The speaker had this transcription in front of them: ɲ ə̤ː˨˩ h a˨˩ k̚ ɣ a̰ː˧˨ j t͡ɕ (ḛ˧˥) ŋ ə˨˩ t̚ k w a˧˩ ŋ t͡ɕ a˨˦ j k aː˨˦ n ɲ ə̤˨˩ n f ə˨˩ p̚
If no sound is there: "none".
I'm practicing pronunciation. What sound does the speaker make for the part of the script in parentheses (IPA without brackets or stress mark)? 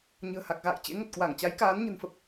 ḛ˧˥